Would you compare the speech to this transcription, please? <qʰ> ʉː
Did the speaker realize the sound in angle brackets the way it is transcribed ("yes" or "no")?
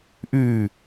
no